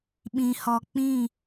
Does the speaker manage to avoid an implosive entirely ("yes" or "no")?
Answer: no